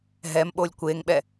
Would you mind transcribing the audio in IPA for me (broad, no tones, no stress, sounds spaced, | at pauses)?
ɦ ɛ m ɓ o lʲ kʷ e ŋ ɓ ɛ